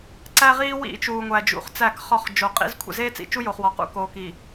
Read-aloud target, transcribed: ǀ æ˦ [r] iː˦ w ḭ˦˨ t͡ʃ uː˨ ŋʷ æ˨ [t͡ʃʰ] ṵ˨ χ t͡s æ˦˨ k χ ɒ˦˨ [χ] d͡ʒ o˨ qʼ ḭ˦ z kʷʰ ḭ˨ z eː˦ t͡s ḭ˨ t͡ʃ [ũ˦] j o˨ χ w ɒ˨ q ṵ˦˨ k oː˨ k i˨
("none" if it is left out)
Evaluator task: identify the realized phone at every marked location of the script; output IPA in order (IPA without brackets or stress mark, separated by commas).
ʁ, d͡ʒ, χ, u˦